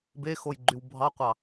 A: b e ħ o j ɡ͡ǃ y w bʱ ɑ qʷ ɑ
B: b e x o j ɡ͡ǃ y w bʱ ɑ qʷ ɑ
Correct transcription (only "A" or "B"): B